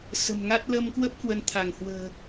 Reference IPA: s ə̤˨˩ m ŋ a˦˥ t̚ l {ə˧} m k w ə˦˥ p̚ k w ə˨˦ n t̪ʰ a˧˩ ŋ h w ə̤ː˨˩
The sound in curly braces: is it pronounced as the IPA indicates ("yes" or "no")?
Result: yes